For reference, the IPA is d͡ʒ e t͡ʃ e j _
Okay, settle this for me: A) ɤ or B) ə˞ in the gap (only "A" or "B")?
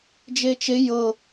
A